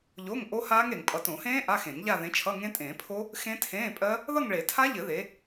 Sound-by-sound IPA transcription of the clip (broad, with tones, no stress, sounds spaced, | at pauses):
ʎ o˧˥˧ ŋ ʔ o˦˥ h aː˦˥ ŋ ɾ e˨ ŋ pʼ ʌ˨ t õ˨˩˦ h ẽː˦˥ ʔ a˧˥˧ x ẽ˨˩˦ ŋ ʎ a˥˧ ð ẽ˨˥ t͡ʃʰ ʌ˧˥˧ ŋ ẽ˦˥ tʼ ẽː˨˩˦ pʰ o˦˥ | x ẽ˦˥ tʰ ẽː˧˥˧ pʼ ɜ˦˥ | ð ʌ˥˧ ŋ ɭ e˨˩˦ tʰ a˦˥ ʎ ɘ˨˩˦ ð e˨˥